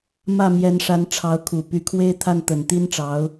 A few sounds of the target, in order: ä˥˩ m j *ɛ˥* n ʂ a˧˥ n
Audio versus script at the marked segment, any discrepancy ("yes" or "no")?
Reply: yes